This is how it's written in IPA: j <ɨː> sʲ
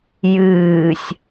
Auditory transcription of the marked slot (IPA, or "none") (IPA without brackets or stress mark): ɨː